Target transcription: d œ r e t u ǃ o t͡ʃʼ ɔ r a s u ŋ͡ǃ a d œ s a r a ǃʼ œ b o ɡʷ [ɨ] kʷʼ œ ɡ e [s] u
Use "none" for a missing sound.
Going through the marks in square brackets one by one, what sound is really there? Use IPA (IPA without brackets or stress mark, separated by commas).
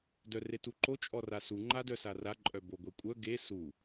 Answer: e, s